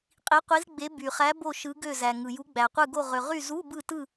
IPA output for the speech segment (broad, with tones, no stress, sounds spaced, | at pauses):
qʼ i˨˦ qʷ i˨˦ z ɡ͡b e˨˦ b y˩ χ æ˨˦ b o˦˨ ʃ ɯ˨˦ ɡ ø˦˨ z æ˩ ŋ ɯ˩ j u˨˦ ɡ͡b æ˩ qʷ ɯ˦˨ ɡ o˦˨ ʁ ø˩ ʁ y˦˨ z u˧˥˧ b ɯ˦˨ t ɯ˦˨